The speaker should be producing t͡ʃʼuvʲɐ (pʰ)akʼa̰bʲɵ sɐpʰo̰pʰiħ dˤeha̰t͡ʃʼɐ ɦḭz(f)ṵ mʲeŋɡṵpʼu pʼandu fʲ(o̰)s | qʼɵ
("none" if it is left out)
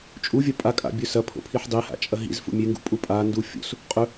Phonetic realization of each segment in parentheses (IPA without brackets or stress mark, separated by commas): pʼ, f, o̰